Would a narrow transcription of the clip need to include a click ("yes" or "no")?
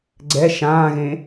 yes